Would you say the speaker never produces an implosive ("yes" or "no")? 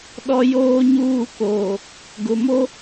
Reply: no